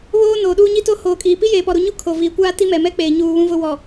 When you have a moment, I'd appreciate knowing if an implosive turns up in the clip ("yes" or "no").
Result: yes